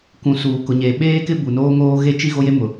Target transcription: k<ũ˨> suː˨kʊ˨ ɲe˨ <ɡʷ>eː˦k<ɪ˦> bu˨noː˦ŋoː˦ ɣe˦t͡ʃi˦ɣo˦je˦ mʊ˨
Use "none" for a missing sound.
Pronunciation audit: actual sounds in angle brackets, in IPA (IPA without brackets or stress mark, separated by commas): ũ˨, ɓ, ɪ˦